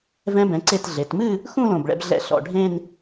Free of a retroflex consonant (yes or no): no